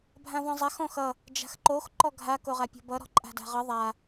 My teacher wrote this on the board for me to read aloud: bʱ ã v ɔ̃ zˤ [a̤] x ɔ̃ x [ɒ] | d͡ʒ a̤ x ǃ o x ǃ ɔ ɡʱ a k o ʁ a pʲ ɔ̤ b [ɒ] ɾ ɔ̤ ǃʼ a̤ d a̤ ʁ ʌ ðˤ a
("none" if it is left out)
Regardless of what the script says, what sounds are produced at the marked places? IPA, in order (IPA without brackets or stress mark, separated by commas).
a, ʌ, ʌ